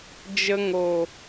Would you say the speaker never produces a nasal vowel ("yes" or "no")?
yes